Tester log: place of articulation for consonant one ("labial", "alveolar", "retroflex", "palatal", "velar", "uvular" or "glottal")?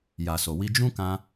palatal